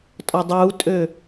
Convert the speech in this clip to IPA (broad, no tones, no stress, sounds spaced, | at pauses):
tʼ ɔ dˤ uː tʼ ø